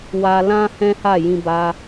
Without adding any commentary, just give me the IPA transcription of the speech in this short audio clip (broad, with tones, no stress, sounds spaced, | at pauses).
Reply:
w a˧ l ã˦ h ɛ̃˦ h a˦˨ j ĩ˧ b a˧